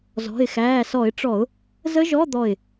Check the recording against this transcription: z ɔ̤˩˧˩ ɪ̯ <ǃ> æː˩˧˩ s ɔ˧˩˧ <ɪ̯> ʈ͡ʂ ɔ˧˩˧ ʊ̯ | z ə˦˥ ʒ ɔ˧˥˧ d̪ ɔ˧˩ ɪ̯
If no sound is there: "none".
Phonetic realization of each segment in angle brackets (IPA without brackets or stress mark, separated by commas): x, ɪ̯